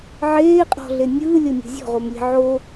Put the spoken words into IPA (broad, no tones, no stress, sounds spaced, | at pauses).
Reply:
ʕ eː qʼ ɔ̤ ɮ e nʲ ɯː lʲ ɤ nʲ o̤ zʲ ɔ̤ ʁ o m lʲ e̤ ʕ o